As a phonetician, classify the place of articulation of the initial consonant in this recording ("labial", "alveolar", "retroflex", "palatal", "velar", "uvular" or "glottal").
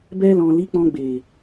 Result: labial